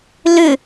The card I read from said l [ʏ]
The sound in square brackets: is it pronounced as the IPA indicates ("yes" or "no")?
yes